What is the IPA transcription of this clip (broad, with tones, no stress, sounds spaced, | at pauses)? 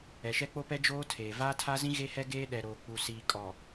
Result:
ɛ˨ ʃ ɛ˦ k͡p o˦ p ɛ˦ d͡ʒ oː˦ tʰ eː˨ v aː˦ tʰ a˦ z ĩ˦ ɣ e˦ h ɛ˦ ɡ eː˦ ɗ ɛ˨ ɾ oː˨ k͡p u˨ s iː˨ kʼ ɔ˨